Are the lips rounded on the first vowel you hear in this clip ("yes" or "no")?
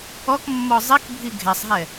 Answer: yes